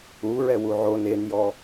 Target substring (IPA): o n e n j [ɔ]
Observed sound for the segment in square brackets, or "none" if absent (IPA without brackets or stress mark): ɔ